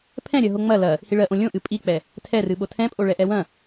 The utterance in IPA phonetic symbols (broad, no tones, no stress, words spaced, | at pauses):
pʰɛ̃ɾʲɜɦo ŋ͡mɐ lɐ | hiɭɜʔõ lʲõʔɨ pʼik͡pɛ | tʰɛrɨɓo tʰɛ̃pʼo ɭɛʔɛwɐ̃